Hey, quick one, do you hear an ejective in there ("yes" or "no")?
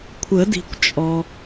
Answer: yes